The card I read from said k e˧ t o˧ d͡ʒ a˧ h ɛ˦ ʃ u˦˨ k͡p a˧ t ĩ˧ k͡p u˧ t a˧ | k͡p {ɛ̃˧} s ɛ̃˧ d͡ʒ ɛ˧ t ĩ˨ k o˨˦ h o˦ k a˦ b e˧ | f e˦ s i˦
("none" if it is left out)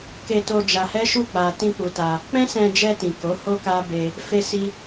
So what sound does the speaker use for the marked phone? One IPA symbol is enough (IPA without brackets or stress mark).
ɛ̃˦